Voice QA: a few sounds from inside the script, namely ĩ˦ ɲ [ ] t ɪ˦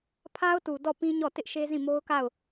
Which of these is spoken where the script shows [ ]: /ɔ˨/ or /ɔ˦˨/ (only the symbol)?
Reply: ɔ˦˨